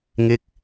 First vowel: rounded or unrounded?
unrounded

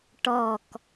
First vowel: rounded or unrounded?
rounded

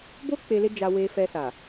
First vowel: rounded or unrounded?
rounded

